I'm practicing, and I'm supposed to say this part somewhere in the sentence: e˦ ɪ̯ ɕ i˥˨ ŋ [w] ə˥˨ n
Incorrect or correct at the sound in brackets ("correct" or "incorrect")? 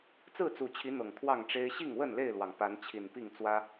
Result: correct